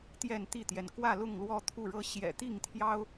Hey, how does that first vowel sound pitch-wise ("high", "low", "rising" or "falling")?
falling